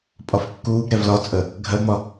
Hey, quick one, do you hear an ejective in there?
yes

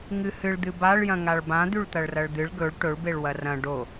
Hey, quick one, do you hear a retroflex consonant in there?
yes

